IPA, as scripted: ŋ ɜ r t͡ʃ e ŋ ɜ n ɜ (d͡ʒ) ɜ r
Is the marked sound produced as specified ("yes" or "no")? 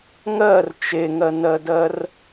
no